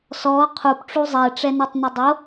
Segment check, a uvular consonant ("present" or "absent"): present